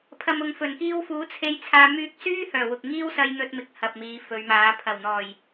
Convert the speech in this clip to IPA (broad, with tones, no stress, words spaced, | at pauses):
pʰɐ˨mʊ˨ŋfɵ˨˩nkiː˧w fuː˨˥t͡sʰe˧jt͡sʰaː˧ myː˧k̚syː˥ hœː˨˩wʊ˨k̚ ŋiː˥wsɐ˧j n̪ɵ˧t̚mɪ˨˥k̚ hɐ˨p̚miː˨˧fɵ˨˧ɥmaː˨˧ pʰɐ˨˩wn̪ɔː˨˩j